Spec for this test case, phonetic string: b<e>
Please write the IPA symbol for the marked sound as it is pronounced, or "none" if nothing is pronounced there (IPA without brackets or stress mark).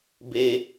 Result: e